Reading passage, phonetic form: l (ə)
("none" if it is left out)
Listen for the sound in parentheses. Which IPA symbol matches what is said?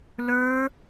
ə˞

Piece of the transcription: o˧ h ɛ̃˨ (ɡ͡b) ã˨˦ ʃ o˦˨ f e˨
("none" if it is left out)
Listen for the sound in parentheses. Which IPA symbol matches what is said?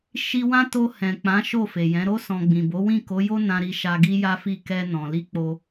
k͡p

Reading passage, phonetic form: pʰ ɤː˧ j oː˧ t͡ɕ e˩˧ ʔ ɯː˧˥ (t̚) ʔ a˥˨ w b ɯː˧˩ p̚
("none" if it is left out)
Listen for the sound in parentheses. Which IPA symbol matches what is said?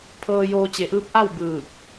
p̚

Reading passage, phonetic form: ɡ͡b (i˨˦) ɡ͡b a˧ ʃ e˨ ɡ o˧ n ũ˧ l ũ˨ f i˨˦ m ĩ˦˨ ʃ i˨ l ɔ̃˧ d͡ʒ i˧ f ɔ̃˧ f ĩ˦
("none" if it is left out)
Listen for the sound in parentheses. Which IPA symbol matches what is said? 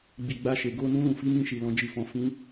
i˨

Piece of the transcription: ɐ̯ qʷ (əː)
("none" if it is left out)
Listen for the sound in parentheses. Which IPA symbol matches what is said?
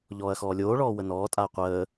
əː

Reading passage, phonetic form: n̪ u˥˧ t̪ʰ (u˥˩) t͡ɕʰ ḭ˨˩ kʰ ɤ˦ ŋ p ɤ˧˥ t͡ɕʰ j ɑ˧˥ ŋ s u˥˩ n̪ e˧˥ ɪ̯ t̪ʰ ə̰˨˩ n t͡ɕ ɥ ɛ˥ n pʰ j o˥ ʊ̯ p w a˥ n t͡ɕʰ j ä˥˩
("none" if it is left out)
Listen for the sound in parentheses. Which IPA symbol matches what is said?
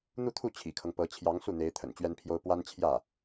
u˥˩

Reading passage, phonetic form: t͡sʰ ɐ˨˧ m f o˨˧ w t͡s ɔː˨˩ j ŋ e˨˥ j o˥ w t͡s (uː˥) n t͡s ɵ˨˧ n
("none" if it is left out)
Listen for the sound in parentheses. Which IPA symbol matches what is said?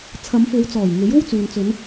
uː˨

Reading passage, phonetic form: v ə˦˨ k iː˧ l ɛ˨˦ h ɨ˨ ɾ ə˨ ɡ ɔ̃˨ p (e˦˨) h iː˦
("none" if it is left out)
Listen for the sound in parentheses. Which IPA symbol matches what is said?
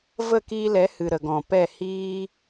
ɛ˦˨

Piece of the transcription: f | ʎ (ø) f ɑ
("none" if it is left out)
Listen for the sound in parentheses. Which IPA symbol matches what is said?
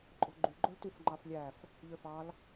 ø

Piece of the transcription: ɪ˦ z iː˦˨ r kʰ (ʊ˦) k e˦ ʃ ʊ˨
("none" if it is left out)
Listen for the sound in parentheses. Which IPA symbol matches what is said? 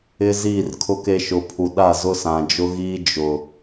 ʊ˦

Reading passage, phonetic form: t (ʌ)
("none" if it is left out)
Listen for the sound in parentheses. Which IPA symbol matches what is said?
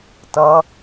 ʌ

